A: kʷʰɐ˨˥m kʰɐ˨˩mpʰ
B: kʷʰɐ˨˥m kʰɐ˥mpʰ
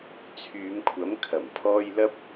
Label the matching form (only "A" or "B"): A